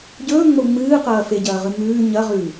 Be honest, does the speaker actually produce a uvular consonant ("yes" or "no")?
yes